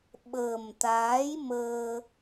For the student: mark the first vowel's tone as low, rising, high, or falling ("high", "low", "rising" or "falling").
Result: low